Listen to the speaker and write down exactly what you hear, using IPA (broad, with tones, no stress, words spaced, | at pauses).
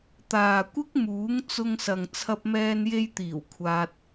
t̪aː˨kʷɪ˥k̚muː˨˥ŋ t͡sʊ˧ŋsɐ˨ŋ t͡sʰɐ˧p̚mɛː˧nje˧jt̪iː˨˩w kʷʰaː˧t̚